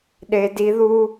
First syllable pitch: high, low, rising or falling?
high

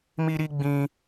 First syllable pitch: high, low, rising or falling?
high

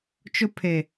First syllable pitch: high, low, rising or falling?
high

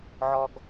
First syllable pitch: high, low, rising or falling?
high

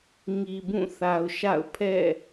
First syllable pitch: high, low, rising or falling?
low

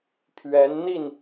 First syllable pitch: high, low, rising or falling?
rising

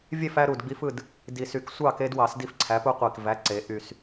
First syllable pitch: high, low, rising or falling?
falling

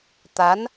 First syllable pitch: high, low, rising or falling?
rising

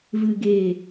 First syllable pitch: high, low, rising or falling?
low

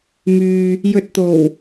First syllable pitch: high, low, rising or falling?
low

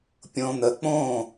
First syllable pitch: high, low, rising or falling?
low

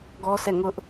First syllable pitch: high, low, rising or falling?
high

